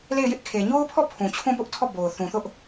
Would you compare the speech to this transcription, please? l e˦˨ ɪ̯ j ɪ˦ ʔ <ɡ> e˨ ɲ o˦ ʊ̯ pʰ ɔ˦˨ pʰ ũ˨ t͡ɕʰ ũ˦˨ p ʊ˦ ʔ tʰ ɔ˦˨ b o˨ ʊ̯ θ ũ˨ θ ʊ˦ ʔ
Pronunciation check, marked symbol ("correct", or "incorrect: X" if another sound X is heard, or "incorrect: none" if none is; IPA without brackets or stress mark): incorrect: kʰ